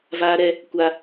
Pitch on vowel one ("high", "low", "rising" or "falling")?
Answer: high